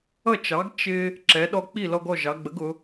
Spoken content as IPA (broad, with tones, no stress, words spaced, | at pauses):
ʌ˥˩t͡ʃɑ˩˥ɡ t͡ʃɪ˧ | ǁɛ˩˧ɗɔ˧ k͡pi˥˩lɔ˧ɡɔ˥˩ ʒɑ˩˧ɡ͡bə˩˥ɡʊ˩˧